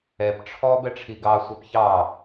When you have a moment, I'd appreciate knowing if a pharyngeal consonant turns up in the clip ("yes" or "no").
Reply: no